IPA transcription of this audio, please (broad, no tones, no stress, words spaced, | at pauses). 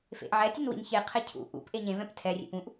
fḛʔʕɛtʲon wḭnçeqʰɛ cʰṵ ʔṵp ʔeɲẽvɛ̃p tʰɛrʲḛp ũʔ